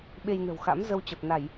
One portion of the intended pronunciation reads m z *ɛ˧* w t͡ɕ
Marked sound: incorrect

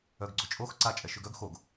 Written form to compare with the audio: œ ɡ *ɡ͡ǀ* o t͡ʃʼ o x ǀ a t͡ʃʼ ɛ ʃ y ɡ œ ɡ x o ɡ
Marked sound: correct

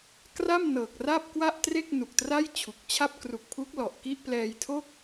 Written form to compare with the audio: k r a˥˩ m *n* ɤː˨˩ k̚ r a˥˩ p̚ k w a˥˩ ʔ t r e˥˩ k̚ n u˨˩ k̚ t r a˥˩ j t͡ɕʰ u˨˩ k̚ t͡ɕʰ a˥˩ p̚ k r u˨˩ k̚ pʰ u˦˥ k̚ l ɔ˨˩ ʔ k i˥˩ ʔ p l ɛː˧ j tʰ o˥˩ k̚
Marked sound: correct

